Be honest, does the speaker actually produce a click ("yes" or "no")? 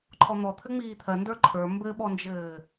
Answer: yes